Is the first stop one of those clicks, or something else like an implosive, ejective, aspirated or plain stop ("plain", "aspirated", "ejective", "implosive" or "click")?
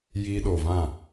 implosive